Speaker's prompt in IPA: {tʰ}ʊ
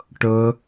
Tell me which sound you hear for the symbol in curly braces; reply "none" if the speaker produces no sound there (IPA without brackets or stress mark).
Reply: ʈ